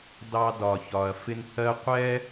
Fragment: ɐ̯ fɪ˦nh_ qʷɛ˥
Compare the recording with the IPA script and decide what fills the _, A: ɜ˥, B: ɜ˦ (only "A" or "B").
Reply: A